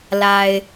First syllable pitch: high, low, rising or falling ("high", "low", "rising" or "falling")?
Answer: low